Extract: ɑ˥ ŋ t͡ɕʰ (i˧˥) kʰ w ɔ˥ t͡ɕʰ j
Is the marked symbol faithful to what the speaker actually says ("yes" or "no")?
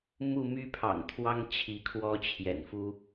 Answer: yes